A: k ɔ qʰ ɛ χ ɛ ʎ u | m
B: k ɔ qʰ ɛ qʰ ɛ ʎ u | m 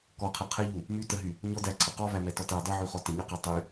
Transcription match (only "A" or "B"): B